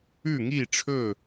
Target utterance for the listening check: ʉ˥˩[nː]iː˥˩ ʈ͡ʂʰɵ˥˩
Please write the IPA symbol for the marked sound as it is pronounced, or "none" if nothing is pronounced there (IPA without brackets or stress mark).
ŋ